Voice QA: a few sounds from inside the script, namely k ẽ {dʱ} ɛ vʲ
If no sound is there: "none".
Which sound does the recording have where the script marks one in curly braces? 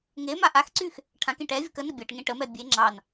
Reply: ʈ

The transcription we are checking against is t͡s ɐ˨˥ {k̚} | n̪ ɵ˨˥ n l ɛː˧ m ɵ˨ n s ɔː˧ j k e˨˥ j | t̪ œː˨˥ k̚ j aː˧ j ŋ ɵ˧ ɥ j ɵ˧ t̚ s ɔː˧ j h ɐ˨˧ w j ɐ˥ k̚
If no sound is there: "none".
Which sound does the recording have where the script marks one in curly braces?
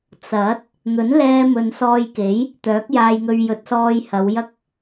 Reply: t̚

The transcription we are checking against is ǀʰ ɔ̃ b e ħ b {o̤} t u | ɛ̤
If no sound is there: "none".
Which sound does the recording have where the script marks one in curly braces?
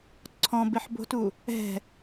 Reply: o̤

